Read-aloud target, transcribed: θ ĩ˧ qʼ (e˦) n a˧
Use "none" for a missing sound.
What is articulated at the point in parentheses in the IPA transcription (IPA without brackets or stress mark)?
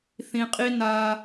i˦